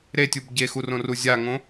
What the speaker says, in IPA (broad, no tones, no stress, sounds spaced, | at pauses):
ɾ e tʲ u b ɟ e x u r õ r u zʲ a ŋ õ